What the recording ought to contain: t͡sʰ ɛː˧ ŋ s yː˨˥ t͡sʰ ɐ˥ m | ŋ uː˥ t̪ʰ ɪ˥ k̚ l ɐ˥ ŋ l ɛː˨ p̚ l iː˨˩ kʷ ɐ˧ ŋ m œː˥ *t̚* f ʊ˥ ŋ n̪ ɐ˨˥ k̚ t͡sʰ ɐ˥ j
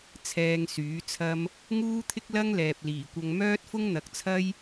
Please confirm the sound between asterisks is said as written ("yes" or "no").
yes